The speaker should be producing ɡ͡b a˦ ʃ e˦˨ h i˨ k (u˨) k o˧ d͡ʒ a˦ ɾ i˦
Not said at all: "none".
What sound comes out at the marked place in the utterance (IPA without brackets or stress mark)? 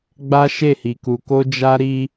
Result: u˨